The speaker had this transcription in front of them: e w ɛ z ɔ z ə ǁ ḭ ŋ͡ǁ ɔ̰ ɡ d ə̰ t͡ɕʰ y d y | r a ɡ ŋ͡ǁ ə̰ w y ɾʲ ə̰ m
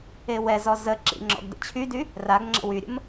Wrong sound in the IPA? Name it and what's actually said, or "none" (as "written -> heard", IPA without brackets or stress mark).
none